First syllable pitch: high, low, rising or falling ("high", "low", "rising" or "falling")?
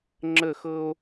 falling